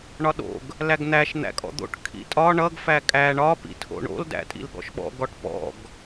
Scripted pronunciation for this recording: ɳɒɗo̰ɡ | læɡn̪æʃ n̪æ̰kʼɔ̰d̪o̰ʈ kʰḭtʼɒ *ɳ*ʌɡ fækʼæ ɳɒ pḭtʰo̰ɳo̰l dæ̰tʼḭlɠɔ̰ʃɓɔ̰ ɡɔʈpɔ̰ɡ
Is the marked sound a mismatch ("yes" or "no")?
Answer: no